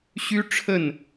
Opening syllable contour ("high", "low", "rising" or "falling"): high